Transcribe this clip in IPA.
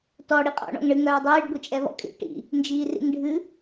tɔ ɽiqʼɔ̰ ɳɔ̰ŋɳɨ ŋœːdˤiːɖ ɡʷit͡ʃʼɛβɔ̰kʼḭ ʈḭ | nd͡ʒiːrḭŋɖʱɨ

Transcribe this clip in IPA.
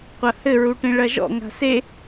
qʷɐhɘ ɹuʈẽɭɐʒɔ̰ ŋa̤se

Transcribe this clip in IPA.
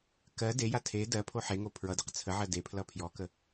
kɜ deja tʰe dɜpʰo ħeŋo pʰɹʌdeq t͡sʰəʕɜ depʰlʌ pʰjɔkə

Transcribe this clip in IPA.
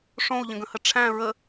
ʂõu̯ʎə̃ɡə̃hə ʈ͡ʂʰæ̃ ɹə

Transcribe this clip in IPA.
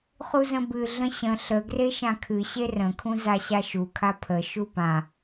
χuzə̃bɨ ɮə̃ɕə̃ ɬə ɡreʃãkʰɨɕe rə̃kʰũ zaɕaʃukʰa pʰə ʃupã

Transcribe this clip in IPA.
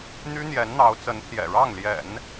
n̪y˥n̪jɛ˧˥nn̪ɑ˧˥ʊ̯ t͡sə˧˥npʰjɛ̰˨˩ɻɑ˥˩ŋljɛ̰˨˩˦n

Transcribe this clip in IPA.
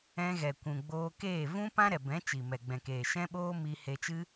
ɛ̃˧ɣɛ˨ kʷũ˨ɡ͡boː˧ keː˦˨vũ˦ pã˦ɾɛ˨bɛ̃˨˦ t͡ʃi˨mɛ˨ɡ͡bɛ̃˨keː˨ ʃɛ̃˦ɓoː˦ mi˧ he˧t͡ʃɨ˦

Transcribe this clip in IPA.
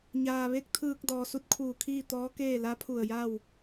ɲaː˩ʋe˧˥k̚ t̪ʰɯː˧k̚ dɔː˩su˧t̚kʰuː˧˩kʰiː˥˨ t̪ɔː˧˥keː˥˨ la˧˥pʰu˧˩ə̯ja˥˨w

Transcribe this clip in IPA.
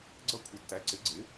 ɡ͡ǀʌ˥˨kʷʰɪ˨˥tːæ˨˥ ǀɪ˨˥ɡ͡ǀɪ˨˥

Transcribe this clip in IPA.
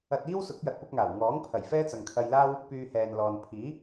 ɐ˧t̚iː˥wsʊ˨˥k̚ jɐ˧t̚pʊ˥k̚ŋaː˨˩w ŋɔː˨˥ŋ pʰɐ˨˩jfɛː˥ t͡sɐ˨ŋkʰɐ˧jlaː˥w | pyː˧hɛː˨n lɔː˨n pʰiː˨˥

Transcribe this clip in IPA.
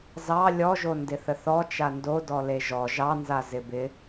zɑ lʲɔʒo ndɪθəθɔ t͡ʃando dɔleʒɔ ʒɑnza zɪbɪ

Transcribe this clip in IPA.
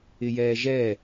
ɪjɛːʒɛ

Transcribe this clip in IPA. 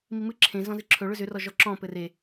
mimɨ ǁʰẽ zɔ̃zɨǁʰɵ ɭʏzʏ rɔʒɔǁɔ̃ pɘre

